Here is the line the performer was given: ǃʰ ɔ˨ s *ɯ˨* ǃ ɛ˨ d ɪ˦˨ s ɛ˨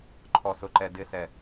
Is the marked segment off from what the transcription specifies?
yes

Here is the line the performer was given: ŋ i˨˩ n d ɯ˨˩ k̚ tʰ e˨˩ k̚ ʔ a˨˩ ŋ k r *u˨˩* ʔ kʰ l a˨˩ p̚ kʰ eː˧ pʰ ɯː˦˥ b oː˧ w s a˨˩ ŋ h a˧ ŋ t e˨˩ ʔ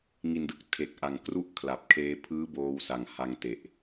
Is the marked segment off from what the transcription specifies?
yes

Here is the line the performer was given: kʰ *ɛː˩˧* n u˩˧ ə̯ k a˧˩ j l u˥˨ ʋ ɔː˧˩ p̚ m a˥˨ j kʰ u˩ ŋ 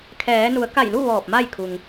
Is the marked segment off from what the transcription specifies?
no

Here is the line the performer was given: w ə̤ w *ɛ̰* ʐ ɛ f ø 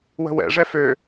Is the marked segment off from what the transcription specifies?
no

